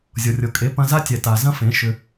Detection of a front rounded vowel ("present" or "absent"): present